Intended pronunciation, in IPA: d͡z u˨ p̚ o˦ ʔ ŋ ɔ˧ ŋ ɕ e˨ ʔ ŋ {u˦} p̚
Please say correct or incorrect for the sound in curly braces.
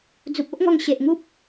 correct